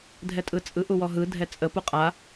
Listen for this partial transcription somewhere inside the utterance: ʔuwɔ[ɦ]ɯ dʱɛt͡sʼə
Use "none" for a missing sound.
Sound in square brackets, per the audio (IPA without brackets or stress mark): ɦ